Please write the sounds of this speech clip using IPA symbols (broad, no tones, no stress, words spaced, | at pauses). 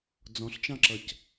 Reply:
d͡zɔ̃ɬt͡ʃɑ̃ǁʌc